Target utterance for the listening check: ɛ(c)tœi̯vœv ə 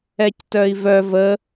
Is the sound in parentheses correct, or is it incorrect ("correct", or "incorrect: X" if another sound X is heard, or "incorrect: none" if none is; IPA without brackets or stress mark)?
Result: correct